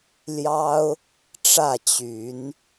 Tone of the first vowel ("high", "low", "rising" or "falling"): high